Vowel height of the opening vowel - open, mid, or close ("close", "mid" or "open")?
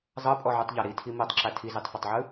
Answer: mid